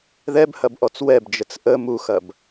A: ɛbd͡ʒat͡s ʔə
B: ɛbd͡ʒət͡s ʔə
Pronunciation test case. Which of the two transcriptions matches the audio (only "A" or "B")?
B